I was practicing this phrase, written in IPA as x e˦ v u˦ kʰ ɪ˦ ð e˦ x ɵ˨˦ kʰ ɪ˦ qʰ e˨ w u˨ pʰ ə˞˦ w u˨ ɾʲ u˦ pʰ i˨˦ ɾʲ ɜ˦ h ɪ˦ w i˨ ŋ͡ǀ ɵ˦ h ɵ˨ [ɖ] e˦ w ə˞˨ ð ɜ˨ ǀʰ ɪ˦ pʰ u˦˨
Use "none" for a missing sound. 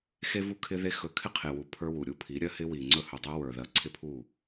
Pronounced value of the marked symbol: dˤ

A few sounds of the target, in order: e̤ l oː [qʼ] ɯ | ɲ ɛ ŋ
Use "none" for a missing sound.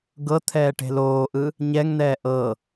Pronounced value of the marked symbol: ʔ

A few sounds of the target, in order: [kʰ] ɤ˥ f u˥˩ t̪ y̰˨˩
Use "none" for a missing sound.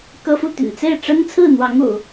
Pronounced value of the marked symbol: k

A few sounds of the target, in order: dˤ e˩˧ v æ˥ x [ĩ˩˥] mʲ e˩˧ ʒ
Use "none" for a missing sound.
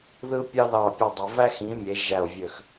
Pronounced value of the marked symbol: ĩ˩˥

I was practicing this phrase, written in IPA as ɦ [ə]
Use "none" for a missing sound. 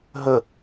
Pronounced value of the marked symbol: ə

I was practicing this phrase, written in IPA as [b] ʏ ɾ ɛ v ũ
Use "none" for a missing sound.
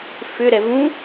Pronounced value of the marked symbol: f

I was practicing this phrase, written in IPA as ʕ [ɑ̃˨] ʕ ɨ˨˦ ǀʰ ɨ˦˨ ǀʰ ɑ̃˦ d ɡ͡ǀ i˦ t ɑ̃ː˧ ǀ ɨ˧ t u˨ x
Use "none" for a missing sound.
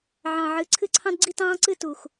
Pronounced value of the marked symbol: ɑ̃˨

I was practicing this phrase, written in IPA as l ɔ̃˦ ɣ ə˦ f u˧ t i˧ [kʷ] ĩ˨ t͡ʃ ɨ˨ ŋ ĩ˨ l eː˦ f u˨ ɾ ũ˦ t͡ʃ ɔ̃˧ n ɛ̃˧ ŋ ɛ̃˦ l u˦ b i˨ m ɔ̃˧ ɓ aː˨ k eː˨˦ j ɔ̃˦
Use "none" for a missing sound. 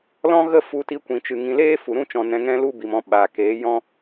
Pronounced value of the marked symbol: kʷ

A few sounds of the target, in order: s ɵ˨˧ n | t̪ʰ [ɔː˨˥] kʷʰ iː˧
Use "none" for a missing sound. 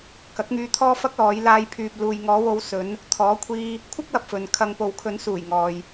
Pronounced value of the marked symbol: ɔː˨˥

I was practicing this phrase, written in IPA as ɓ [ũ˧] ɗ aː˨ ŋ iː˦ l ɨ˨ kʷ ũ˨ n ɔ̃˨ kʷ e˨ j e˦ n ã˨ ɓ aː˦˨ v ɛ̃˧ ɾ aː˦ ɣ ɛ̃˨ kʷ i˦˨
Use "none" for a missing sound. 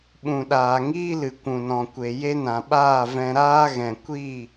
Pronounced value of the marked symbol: ũ˨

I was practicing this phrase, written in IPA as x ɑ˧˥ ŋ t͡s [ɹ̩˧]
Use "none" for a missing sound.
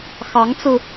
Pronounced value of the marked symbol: ɹ̩˧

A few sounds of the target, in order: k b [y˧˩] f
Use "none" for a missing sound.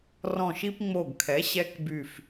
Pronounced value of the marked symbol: y˧˩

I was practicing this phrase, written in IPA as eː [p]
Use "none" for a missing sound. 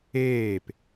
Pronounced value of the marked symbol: p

